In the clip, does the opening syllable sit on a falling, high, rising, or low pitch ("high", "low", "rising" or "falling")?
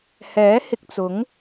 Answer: rising